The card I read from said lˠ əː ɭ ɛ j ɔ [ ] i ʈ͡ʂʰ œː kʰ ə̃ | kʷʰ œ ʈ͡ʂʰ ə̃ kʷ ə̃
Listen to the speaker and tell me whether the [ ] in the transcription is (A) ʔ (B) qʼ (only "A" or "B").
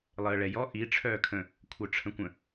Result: A